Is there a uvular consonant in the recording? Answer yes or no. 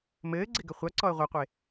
yes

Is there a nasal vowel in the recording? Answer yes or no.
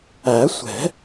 no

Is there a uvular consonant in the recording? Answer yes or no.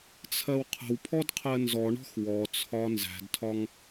yes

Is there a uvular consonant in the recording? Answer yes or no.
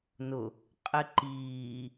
yes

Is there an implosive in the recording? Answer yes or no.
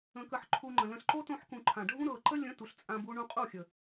no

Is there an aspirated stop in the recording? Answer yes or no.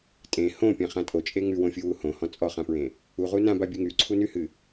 yes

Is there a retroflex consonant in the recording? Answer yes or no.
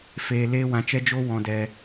no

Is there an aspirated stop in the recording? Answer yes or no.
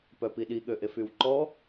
no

